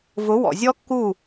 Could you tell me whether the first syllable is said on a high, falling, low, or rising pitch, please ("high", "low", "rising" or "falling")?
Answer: rising